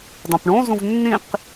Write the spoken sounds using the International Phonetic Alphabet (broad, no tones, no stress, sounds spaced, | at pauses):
dˤ ũ p ɳ õ z ũ v nː ĩ q